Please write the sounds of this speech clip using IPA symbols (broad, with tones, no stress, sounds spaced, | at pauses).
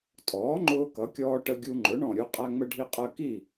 tʼ ɔː˩˥ ŋ͡ǃ ʊː˧ k ʌ˩˥ kʲ ɔː˧ ʈ ə˧ ɡʲ u˧ ŋ͡ǃ ʊ˩˥ ɳ ɔ̃˧˩ ɾʲ u˧ qʼ æ˧ ŋ͡m ə˧ ɖʱ i˧ qʼ ɜ˧ k i˥˩